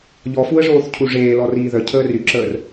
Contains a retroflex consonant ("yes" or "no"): yes